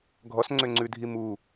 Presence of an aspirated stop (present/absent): absent